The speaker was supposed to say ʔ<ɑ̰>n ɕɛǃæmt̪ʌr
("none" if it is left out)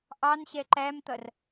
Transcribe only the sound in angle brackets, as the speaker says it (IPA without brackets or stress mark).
ɑ